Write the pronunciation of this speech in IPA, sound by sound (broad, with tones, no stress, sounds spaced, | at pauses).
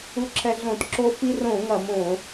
u˧ ǁʰ ɛ˧ ɮ õ˧˩˧ t ǁ o˧ f i˧ r õ˧˩˧ ŋ ɐ˧˩˧ m õ˧˩˧